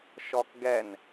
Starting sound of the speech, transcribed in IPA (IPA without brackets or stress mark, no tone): ʃ